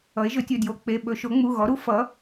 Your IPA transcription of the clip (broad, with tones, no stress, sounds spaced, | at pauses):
ʌ˩˥ e̯ ʒ ɵ˩˥ tʲ ɵ˩˧˩ d j o˧˩˧ k͡p e˩˧˩ ɓ ɵ˧˩˧ ʃ o˩˥ ŋ͡m u˩˧˩ ɣ ɔ˩˥ ɾ u˩˥ f ʌ˩˥